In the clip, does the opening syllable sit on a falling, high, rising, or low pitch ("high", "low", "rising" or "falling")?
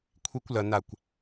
high